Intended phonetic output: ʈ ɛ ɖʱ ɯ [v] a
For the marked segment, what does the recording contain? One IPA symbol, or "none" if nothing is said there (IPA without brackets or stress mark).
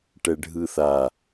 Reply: θ